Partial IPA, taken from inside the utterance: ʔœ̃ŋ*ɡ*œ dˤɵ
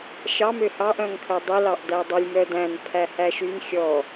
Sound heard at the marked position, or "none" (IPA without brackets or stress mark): kʰ